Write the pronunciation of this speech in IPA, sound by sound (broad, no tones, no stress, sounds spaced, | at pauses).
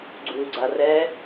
ɡ͡ǀ u ɡ͡ǀ a r ɛ